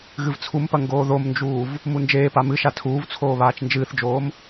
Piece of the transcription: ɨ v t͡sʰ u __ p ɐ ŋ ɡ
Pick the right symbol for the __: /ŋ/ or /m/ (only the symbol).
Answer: m